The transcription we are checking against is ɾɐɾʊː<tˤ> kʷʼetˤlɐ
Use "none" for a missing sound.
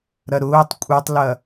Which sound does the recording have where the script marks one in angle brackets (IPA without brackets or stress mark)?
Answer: tˤ